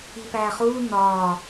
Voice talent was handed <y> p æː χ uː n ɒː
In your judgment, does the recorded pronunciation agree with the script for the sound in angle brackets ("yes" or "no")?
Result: no